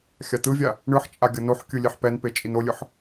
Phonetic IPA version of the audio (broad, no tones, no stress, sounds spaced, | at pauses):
xʲ a t̪ ɯ vʲ a | ɳ ɯ ħ t͡ʃʼ a ɡʲ ʌ n o ħ kʲ ɯ lʲ e ħ p ɛ n p e t͡ʃʼ i n o lʲ ɯ ħ